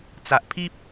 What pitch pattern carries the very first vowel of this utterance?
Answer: low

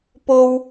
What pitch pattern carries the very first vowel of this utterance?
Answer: high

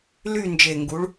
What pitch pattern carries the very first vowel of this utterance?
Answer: falling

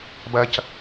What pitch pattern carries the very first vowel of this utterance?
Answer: high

